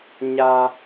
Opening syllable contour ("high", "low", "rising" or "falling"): high